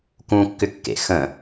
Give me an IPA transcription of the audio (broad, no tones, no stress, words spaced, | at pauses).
kũkːʏkːḛ xə̃